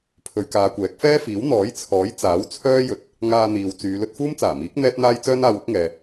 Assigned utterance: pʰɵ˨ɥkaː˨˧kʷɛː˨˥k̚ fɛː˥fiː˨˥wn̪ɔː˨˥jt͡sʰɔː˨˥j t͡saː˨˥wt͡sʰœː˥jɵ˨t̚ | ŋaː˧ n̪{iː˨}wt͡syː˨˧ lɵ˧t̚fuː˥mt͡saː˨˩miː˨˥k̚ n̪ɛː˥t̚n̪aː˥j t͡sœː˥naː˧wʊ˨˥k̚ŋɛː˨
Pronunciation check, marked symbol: correct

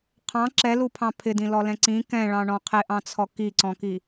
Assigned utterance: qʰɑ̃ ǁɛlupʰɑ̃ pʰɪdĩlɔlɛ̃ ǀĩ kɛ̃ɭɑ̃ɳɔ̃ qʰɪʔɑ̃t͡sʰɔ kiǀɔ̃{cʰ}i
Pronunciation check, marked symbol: incorrect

